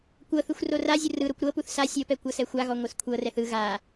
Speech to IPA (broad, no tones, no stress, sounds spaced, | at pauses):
kʷ ɤ θ ɯ xʷ r o r a zʲ u r ɯ ɾ o kʷ ɾ ɤ p u θ s a sʲ ɤ p ɛ kʷ ɤ s ɛ xʷ a ɣ ɔ ŋʷ ɯ s kʷʰ ɤ r ɛ θ ɯ ɣ a